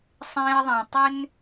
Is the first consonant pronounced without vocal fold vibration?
yes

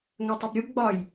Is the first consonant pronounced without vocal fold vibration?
no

